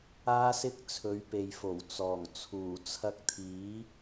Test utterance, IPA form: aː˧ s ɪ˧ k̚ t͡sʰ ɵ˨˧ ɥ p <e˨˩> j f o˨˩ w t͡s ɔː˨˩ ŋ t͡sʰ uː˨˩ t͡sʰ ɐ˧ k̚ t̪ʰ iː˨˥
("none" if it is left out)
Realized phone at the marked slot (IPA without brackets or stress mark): e˨